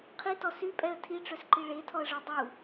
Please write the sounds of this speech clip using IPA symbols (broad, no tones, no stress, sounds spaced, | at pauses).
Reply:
qʰ i t ɔ s y pʼ ɛ ə̯ tʰ i ʈ͡ʂ œ s ǃ i ɭ e tʰ ɔ ə̯ ʐ u dˤ u